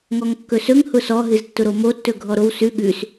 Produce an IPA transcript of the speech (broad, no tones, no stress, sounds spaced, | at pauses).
ŋ ɔ ŋ kː ɵ s ɵ ŋ h ʊ s ɔ ɦ ɨ z tː ʊ ɾ o m o tː ɵ ɡʱ ɔ ɾ o w s ʉ ɠ ʉ s